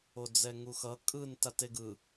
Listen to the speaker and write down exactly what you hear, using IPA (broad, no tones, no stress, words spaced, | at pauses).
od͡zɛŋuxʌ kʼɯn tateɡɯ